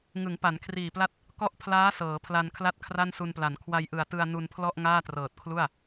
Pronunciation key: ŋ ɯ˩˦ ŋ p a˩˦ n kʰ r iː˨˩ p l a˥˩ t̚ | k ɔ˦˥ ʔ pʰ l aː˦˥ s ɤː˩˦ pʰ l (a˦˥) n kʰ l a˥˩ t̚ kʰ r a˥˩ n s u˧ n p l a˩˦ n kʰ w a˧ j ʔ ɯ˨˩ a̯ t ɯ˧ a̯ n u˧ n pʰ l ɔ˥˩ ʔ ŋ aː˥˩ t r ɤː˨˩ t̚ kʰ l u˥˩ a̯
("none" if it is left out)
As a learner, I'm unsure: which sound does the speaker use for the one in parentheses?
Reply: a˧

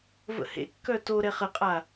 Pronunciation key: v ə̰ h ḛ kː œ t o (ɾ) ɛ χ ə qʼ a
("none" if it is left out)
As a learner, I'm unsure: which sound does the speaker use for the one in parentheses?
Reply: ɾ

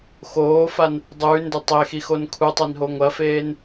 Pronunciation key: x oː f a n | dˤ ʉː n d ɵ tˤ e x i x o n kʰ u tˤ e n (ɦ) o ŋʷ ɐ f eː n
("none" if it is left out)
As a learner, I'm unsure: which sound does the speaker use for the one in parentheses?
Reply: ɦ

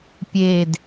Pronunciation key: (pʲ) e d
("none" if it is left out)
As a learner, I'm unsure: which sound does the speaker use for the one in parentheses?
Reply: pʲ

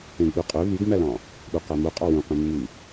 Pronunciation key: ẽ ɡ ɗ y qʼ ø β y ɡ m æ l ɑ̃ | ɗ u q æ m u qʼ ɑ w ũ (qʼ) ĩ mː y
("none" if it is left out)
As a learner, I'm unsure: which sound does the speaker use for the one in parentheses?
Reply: q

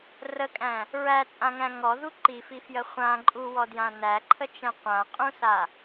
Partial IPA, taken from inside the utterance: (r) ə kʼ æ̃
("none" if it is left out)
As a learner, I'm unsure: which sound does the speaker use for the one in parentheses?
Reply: r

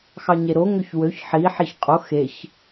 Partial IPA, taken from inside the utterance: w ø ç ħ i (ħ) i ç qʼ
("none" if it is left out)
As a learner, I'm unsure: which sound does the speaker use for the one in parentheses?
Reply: ħ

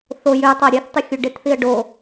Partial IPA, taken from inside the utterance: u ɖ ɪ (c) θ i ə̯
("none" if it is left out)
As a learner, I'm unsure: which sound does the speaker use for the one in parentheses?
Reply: t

